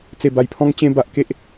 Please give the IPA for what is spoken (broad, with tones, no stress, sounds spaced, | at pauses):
t͡s e˨˩ b a˨˩ j pʰ ɔ̃˧ ŋ t͡ɕ ẽ˧ b a˨ ʔ k e˦ ʔ